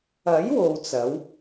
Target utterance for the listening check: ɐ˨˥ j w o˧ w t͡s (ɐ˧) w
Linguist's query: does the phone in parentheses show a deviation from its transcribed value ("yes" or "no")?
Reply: yes